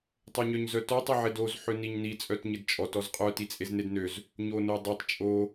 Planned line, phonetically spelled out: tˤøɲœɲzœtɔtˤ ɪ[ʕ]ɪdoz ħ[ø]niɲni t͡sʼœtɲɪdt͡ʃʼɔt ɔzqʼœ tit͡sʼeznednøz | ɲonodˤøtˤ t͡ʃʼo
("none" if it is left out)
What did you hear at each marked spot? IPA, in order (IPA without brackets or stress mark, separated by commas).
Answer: ʕ, ø